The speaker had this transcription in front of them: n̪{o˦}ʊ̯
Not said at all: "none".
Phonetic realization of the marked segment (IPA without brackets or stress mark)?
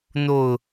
o˥˨